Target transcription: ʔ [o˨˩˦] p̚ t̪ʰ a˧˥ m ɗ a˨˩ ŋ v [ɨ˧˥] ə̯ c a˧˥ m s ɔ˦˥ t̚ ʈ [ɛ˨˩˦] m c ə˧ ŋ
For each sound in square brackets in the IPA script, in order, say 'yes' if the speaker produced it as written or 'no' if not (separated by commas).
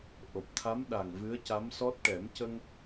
no, yes, yes